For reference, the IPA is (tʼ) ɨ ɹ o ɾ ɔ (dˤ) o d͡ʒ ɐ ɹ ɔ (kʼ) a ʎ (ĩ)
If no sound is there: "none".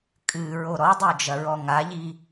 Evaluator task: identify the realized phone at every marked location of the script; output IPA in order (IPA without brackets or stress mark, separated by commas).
kʼ, dˤ, ŋ, i